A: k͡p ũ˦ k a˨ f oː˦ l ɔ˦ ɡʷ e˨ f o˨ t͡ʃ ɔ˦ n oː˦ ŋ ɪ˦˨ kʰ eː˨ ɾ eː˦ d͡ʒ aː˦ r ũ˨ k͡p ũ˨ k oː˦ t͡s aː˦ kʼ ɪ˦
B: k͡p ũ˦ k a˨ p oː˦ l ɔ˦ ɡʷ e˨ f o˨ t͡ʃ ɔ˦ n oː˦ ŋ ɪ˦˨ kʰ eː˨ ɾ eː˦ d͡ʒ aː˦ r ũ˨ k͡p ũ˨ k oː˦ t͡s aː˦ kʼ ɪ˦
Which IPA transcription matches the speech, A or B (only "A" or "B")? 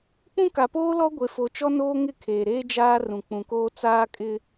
B